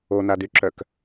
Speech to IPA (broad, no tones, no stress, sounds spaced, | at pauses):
o n a d y ǁ œ k